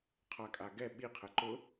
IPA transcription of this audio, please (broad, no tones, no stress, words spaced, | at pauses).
qʰakʼaɡɛ ɓiqʰɛ ǃʊ